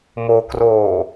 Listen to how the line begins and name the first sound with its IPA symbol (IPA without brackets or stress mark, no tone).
m